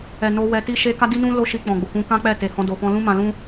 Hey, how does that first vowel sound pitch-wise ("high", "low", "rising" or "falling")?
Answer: low